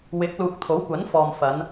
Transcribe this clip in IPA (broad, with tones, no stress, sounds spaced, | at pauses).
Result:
w ɪ˨˥ k̚ l uː˨ k̚ t̪ʰ o˨˥ w kʷ ɐ˨˥ n f ɔː˨ m f ɐ˨˧ n